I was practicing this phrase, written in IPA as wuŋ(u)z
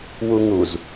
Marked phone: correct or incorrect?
correct